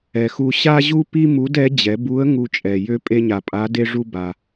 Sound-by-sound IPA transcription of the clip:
ɛ˩xu˧ ɕa˥ʑu˥pi˥ mu˧˥dɛ˧˥ d͡ʑɛ˩˧bu˧˥ə̯ ŋu˧t͡ʃʼɛ˩ jø˧˥pʼe˧ɲa˩ pʼa˧˥de˥ʐu˥ ba˩

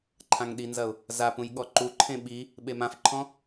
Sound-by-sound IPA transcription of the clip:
ǃʰãŋɗinzɐʊ̯ | zapũj ɠɔǃuǃʰẽ ɓi | ɓemãfǃʰɔ̃

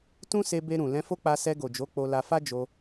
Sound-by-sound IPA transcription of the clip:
tũ˦se˧be˧ ɾũ˨ lɛ̃˧fo˦k͡pa˧ sɛ˧ɡo˨d͡ʒo˨˦ k͡po˧la˧ fa˦ d͡ʒo˧

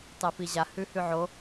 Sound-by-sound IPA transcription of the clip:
tˤefiʑa hʉhʉʕo

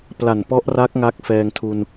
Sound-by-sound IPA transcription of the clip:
pla˨˩npɔ˦˥ʔra˦˥k̚ ŋa˦˥k̚fɛː˧ŋtʰu˧n

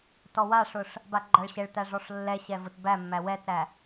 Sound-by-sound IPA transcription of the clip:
tɔwaʂʊʂ | baɡ͡ǃaɭɕɛɭtæ ʐɔʂlːɛɕɛ vʊt bæmːæ wɛtɾæ

